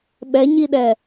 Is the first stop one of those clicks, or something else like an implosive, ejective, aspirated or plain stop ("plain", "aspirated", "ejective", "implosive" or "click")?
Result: implosive